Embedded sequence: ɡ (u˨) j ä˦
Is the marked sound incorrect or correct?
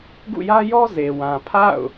incorrect